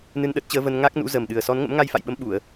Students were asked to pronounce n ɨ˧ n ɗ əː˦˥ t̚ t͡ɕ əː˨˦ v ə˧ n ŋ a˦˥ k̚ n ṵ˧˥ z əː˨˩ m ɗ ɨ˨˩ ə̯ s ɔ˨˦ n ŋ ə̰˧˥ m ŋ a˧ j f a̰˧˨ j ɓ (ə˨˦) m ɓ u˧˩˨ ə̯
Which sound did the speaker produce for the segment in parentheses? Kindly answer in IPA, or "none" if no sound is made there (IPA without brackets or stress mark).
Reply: ə˨˦